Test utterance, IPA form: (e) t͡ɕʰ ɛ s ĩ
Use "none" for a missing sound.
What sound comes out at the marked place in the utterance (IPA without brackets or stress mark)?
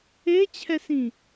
e